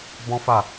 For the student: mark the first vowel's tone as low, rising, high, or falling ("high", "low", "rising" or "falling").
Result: high